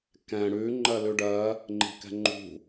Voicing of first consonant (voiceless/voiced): voiceless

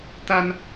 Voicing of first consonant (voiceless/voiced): voiceless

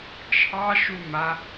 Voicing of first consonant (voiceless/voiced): voiceless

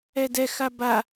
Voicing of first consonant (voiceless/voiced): voiced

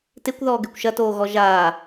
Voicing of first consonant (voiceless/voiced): voiceless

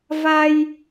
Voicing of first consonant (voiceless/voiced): voiced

